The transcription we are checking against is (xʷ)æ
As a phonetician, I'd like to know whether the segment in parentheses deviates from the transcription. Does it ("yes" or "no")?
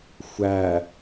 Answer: no